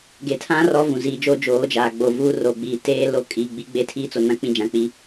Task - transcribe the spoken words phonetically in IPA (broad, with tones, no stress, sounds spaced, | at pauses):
ɡ e˨ tʰ ã˦ r ɔ˦ v ũ˨ z iː˨ d͡ʒ oː˦ d͡ʒ oː˨˦ d͡ʒ aː˨ ɡ͡b o˨ v uː˦ r o˨ ɡ͡b iː˨ t eː˦ l o˦ kʼ iː˨ ɡ͡b i˦ ɡ͡b eː˦ tʰ iː˦ t͡s o˨ n ã˦ k͡p ĩ˦ d͡ʒ ã˨ k͡p i˦